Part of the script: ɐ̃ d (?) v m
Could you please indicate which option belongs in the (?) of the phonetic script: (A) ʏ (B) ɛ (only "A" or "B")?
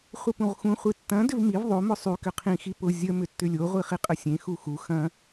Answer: A